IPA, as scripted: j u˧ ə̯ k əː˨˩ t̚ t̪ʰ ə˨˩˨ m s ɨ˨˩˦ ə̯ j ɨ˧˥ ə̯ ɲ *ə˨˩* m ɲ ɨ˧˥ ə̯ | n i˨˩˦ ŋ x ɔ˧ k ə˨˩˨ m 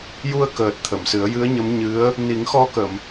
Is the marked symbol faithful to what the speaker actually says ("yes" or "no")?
no